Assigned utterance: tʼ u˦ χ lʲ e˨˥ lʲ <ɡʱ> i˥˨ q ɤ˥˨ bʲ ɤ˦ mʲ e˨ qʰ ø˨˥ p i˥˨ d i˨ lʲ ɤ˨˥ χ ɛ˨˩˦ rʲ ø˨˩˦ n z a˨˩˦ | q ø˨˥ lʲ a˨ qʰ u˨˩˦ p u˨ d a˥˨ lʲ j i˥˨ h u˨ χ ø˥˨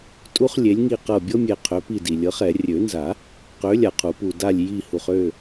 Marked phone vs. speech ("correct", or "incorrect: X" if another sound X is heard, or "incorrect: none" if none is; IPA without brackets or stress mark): incorrect: ŋ